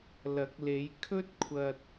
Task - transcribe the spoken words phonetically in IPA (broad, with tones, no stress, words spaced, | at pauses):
lɐ˨˥k̚le˨˧j kʰɵ˥t̚kʷʰɐ˧t̚